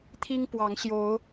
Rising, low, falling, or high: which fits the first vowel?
high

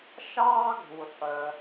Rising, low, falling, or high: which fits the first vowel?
high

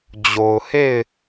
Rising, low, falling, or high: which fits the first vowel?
low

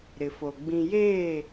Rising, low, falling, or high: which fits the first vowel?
low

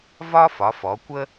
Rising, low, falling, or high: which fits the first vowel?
high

